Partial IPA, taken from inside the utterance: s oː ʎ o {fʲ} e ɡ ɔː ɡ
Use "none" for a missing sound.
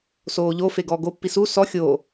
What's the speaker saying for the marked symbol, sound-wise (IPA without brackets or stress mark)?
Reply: f